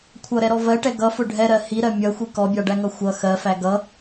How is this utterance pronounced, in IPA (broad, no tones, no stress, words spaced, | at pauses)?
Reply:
kʷʰʌɾɛɾɔ vɜʈɛ ɡʌfʊ ɖʱɛɾɜ hiɾɜ mʲʌxʷi kɔbʲɑɖæŋʌ xʷʌ xɜfæ ɡʌ